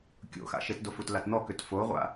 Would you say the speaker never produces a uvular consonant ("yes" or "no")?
no